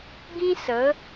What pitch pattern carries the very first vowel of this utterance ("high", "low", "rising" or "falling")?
high